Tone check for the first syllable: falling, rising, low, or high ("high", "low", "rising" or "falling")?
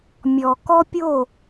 low